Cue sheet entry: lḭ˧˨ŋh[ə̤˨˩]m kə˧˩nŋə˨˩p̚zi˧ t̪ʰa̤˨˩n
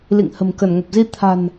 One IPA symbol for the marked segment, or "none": ə̤˨˩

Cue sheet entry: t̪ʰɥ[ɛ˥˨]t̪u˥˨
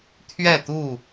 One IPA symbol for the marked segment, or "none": ɛ˥˨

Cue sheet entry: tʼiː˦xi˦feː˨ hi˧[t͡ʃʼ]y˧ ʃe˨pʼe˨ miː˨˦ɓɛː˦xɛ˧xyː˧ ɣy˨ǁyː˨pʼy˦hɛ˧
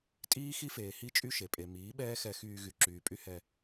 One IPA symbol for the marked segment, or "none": t͡ʃʼ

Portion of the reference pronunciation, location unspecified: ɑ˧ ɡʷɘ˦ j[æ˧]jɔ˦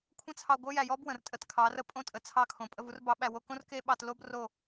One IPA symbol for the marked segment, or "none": æ˧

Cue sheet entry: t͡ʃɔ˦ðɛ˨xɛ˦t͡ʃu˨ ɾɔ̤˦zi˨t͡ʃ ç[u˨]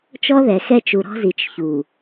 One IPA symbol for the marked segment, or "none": u˨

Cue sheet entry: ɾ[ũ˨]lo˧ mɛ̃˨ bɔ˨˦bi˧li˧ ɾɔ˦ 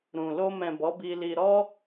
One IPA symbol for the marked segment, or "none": ũ˨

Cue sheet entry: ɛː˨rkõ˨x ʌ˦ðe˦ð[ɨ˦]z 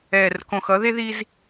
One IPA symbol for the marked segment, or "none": i˦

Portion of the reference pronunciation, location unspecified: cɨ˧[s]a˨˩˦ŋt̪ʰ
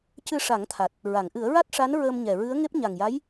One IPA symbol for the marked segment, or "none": ʂ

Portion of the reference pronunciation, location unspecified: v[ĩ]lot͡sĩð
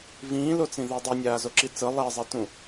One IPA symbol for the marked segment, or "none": ĩː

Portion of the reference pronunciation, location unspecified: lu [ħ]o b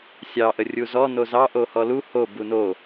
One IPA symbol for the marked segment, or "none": h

